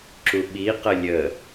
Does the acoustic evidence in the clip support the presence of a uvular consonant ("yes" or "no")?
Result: yes